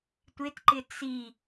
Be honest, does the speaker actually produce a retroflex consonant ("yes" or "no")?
no